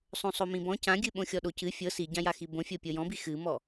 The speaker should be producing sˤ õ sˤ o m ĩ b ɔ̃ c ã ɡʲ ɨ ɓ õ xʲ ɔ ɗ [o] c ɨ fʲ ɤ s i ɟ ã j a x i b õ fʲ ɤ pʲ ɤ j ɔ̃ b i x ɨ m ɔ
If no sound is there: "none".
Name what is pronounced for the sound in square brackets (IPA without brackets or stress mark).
o